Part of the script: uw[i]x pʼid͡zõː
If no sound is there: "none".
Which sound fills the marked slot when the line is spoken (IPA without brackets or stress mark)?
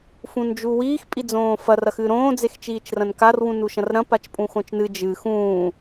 iː